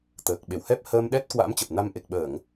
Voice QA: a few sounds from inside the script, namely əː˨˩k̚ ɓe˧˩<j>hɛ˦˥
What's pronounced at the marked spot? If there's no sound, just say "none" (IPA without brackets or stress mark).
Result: w